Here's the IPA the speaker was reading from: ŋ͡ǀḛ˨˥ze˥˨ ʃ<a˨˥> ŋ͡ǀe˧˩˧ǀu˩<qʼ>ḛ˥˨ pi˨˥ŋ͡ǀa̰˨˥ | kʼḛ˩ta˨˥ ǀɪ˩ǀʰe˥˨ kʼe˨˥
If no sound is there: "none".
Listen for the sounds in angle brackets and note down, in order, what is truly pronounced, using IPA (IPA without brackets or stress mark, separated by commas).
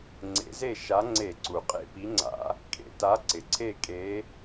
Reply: a˨˥, qʼ